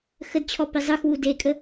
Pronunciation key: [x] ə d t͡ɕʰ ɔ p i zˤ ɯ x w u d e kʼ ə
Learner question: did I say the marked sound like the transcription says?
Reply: yes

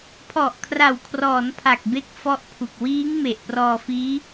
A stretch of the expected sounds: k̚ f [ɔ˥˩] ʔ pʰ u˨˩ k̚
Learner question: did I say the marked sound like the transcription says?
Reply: no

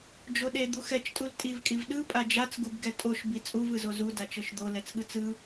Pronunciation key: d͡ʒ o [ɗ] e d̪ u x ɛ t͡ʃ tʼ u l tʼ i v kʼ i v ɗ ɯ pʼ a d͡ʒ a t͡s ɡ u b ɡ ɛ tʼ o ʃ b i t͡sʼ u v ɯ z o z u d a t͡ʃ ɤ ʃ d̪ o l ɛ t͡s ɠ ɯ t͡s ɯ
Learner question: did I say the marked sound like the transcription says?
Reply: yes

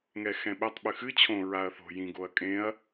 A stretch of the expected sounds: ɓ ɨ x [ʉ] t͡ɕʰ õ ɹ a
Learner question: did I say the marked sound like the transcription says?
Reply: no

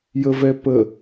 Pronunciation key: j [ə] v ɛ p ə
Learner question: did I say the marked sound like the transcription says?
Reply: yes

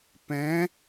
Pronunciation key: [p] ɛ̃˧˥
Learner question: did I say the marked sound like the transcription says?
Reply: yes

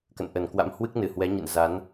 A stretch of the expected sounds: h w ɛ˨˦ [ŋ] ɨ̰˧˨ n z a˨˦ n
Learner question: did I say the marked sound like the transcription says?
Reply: no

